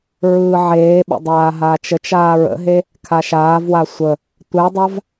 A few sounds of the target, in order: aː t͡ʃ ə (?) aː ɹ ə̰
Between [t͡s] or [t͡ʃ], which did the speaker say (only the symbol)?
t͡ʃ